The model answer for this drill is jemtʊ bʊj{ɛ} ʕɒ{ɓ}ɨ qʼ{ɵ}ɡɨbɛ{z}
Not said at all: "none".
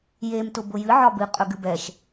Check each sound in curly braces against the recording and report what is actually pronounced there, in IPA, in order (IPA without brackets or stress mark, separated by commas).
ɨ, b, ɵ, ʃ